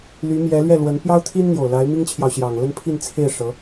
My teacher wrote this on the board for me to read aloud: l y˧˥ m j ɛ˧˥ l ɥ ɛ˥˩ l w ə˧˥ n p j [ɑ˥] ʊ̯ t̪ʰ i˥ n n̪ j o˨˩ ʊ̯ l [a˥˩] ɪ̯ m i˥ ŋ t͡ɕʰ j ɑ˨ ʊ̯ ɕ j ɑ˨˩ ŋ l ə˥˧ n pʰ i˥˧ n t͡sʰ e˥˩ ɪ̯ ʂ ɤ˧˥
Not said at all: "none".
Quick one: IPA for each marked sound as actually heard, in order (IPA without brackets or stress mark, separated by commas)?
ɑ˥, a˧˥